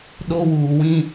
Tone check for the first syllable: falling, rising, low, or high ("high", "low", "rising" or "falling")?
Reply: high